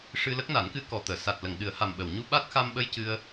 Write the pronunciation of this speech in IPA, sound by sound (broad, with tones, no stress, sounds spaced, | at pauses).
ʂ ɨ˧ l ə˦˥ k̚ n a˨˩˦ n k ɨ˧˥ k ɔ˨˩ t̪ əː˨˩˨ s a˨˩ t̚ l ə˨˩˨ ŋ ɗ ɨ˨˩˦ ə̯ h a˨˩ m ɓ ə˨˩˨ w ɲ u˧ ɓ a˦˥ t̚ x a˧ m ɓ ə˧ j c ɨ˧ ə̯